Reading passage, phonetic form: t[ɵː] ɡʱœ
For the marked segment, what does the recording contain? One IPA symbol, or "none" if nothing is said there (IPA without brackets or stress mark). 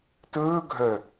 ɵː